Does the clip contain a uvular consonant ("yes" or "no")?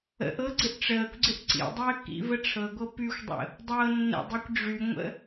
no